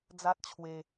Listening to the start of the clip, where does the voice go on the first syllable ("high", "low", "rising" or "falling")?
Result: high